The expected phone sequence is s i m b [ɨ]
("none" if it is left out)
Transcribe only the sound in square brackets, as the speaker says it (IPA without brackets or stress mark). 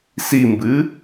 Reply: ɨ